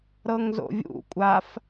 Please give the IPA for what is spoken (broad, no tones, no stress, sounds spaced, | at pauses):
ɾ ɤ ŋ z o̰ vʲ ṵ kʷʼ a f